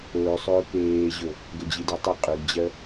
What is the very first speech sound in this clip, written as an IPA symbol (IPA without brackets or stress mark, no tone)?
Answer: ɵː